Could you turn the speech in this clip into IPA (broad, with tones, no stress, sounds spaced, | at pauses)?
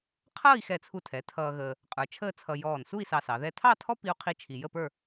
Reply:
qʰ ʌː˥˧ i̯ x ɛ˧˩ t͡sʰ u˧˩ tʰ ɛ˩˧ tʰ ʌː˧ ɣ əː˧ | qʼ ə˞˩˧ t͡ʃʰ əː˥˧ t͡sʰ ʌ˧ j ɔː˧˩ n s u˥˧ i̯ s ɑ˧ s ɑ˩˧ ð ɛ˥˧ tʰ ɑ˥˧ tʰ ɔ˥ p i˥ u̯ qʰ i˥ t͡ʃʰ i˧ j ə˥˧ p ə˞˥˧